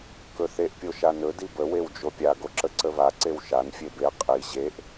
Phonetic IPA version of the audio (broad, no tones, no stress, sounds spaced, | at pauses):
k ɵ θ e ʔ pʲ o ʃ a n ɵ d i b ə w e w d͡ʒ o pʲ a ɡ o ǁ ə ǀ ə β a ǀ e w ʃ a n fʲ e b e qʼ i ʑ e ʔ